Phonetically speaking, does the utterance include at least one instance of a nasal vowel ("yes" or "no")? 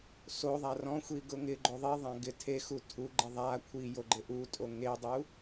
yes